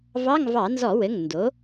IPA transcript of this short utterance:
vɑ˧˥˧ŋ vɑ˧˩˧nzɔ˧˩˧wɘ˩˧˩ŋ ndo˩˥

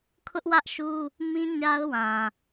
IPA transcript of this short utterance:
kʰʊ˦ʔwä˦ʔʃu˦ | mĩ˦ ɲa˦ʊ̯wã˨

